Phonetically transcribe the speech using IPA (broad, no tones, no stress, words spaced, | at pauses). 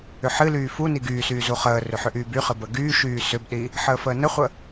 ʏħɨlyː fu niɡyːsyː zuχəːrʏ ħʏʔyːbyχɨ bəɡyːʃyː sʏbɗi | ħəːfəːnəχʷə